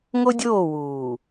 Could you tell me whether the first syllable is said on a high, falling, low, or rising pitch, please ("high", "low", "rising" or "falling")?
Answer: high